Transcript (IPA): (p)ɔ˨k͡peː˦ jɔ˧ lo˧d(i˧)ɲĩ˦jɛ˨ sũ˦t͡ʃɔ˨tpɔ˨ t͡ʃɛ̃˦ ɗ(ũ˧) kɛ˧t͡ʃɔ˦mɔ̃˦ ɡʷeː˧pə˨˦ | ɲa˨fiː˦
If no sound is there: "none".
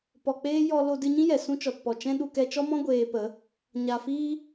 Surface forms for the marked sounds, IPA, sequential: p, ɨ˧, u˧

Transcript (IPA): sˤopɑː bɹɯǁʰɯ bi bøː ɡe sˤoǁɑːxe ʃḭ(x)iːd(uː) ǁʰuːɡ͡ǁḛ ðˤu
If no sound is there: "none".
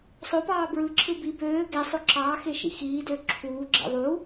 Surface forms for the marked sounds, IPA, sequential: x, øː

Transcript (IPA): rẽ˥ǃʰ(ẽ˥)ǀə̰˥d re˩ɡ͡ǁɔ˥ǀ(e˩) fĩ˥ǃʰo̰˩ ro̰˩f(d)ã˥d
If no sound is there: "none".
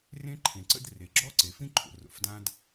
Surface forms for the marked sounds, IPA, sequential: ẽ˩, e˩, d

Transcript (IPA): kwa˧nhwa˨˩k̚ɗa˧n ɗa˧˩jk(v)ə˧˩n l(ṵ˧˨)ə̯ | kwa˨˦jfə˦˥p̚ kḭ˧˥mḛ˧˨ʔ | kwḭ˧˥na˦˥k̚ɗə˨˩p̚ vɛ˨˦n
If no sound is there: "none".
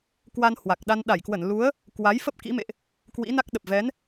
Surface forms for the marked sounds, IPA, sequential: w, u˨˦

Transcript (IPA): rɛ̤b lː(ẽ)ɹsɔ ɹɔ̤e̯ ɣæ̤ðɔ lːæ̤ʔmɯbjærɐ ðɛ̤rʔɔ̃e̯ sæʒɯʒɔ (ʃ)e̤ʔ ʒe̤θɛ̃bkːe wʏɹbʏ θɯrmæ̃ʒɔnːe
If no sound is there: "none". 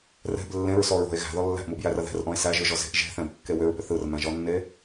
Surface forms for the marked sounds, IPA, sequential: ẽ, z

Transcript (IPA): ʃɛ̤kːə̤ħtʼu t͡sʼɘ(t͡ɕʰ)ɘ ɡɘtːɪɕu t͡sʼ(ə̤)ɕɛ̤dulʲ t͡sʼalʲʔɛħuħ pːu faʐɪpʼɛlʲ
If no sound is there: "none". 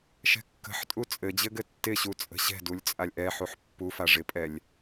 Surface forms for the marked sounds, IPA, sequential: d͡ʑ, ə̤

